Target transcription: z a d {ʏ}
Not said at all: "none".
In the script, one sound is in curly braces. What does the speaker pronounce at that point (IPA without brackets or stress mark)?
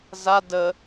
ə